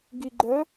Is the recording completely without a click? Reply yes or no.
no